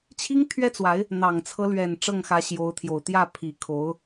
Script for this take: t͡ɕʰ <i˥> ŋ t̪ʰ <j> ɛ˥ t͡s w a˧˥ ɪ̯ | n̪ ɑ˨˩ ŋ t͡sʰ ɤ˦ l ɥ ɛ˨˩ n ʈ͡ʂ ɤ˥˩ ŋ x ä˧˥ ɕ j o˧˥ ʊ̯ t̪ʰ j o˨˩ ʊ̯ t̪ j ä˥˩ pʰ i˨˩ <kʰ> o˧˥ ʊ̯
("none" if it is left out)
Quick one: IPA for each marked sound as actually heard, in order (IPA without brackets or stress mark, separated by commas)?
i˥, ɥ, kʰ